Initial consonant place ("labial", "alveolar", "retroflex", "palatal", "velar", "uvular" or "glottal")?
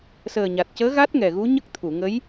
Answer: alveolar